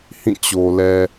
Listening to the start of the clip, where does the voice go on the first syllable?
falling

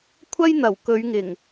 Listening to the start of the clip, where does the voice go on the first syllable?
high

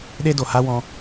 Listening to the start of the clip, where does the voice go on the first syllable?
high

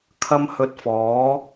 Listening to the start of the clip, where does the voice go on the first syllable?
high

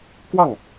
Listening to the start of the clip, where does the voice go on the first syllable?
falling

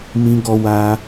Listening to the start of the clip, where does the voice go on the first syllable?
high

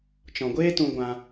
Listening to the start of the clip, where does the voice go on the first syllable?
low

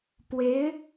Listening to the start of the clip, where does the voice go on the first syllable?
rising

